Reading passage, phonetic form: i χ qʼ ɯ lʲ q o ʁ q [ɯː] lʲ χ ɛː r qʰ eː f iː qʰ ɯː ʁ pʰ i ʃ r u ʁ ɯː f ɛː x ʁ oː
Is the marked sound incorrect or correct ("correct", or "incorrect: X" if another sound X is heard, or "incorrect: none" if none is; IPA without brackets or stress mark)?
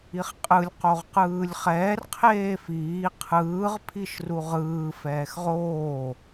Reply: correct